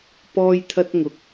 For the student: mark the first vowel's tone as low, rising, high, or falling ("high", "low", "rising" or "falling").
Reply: high